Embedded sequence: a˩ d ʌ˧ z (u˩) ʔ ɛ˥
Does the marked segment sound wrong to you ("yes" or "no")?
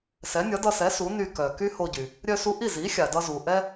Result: no